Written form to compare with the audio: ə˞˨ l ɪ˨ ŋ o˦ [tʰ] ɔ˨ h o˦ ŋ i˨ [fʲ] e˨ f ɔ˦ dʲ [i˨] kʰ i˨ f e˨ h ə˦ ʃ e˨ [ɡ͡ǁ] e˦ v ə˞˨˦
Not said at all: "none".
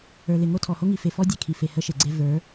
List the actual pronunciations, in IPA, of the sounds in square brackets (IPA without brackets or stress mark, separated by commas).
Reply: tʰ, f, e˨, ɡ͡ǀ